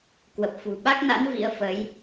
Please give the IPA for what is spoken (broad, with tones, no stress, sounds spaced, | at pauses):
k w ə˨˩ p̚ f ṳ˨˩ ɓ a˦˥ k̚ n a̰˧˥ n v ḭ˧˥ ə̯ f ə˨˦ j